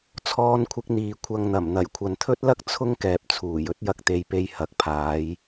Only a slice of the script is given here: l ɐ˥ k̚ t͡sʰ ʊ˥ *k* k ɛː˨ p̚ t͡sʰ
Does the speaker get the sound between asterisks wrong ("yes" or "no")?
yes